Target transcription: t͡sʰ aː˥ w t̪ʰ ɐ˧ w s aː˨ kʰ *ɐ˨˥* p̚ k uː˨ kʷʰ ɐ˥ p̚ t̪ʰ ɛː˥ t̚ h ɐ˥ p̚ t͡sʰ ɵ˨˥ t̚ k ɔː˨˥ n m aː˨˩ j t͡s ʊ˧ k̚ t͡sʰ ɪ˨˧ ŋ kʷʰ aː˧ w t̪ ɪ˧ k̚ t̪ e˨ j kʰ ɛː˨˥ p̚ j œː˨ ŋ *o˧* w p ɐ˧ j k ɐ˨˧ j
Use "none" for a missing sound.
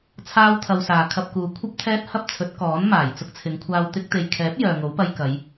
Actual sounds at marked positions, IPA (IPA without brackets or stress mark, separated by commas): ɐ˧, o˨˥